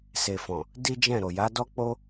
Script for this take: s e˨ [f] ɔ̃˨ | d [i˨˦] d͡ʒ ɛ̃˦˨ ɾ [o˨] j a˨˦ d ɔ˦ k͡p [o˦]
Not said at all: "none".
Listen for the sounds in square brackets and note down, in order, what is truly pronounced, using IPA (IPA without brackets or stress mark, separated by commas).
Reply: f, i˦, o˨, o˦